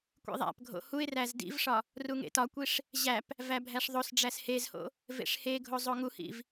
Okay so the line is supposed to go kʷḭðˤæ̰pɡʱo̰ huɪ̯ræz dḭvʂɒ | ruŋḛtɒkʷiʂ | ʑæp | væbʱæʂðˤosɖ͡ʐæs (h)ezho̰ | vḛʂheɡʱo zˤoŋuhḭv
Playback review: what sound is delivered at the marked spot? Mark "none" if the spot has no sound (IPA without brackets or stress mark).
h